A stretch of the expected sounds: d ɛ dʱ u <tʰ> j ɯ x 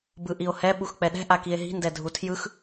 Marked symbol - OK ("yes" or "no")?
yes